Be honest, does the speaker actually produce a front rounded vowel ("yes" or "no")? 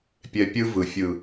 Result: no